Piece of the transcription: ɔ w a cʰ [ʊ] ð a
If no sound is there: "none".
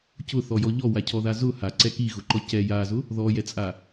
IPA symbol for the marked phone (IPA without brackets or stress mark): ɔ